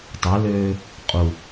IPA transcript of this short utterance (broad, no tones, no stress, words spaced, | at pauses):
tˤʊløː | qʼu